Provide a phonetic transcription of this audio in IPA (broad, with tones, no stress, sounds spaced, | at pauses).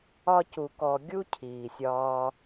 ɒ˦ c u˧ k ɔ˧ ɡʲ u˦ cʰ iː˨ sʲ ɒː˧